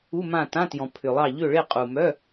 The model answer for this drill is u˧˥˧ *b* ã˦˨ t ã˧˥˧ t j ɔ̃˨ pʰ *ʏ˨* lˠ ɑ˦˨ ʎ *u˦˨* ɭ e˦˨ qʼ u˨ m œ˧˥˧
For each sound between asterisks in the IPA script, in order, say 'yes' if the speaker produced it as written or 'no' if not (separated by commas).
no, yes, no